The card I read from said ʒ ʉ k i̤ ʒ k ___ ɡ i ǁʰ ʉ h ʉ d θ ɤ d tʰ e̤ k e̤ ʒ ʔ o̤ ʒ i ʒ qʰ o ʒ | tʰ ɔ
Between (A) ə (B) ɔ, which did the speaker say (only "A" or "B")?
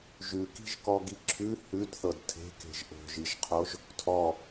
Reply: B